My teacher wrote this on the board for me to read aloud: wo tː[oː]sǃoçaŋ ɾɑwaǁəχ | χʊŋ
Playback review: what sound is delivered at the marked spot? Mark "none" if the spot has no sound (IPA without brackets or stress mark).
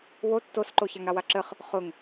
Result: o